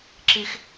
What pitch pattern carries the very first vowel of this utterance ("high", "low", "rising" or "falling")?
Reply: high